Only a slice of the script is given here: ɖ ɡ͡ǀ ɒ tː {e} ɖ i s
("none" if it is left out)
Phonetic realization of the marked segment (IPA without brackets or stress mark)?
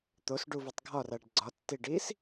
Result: i